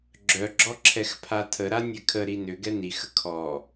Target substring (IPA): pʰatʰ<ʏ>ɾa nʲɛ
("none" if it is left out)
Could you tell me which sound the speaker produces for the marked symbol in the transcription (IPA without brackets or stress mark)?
ə